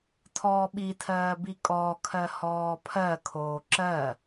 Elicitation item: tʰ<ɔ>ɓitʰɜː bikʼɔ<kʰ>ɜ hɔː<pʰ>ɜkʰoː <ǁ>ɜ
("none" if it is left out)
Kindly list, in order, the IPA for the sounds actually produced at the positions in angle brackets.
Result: ɔː, kʰ, pʰ, ǁ

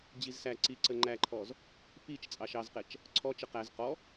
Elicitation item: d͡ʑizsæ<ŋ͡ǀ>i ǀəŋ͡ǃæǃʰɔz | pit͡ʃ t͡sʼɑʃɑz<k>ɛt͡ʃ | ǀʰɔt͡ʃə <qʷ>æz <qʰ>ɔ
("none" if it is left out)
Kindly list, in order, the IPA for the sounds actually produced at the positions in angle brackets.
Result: ǀ, q, q, q

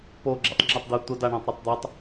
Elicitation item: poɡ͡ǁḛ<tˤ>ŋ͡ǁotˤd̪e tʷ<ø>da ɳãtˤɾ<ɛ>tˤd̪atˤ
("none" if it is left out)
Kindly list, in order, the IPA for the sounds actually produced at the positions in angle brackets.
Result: tˤ, ə, ə

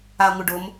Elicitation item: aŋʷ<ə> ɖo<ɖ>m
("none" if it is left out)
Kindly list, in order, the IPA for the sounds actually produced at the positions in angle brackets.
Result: ɪ, none

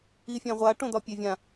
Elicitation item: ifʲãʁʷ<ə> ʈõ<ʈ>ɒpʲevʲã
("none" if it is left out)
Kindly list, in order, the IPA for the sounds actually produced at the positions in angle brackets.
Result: a, d̪

